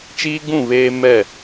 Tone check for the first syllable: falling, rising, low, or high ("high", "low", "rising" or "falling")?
high